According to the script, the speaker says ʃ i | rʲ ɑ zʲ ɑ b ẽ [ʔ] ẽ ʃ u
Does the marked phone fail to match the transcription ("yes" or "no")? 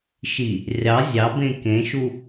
yes